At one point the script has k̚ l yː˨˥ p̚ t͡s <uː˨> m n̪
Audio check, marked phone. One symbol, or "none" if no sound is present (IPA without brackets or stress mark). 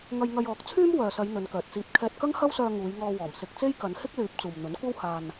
uː˨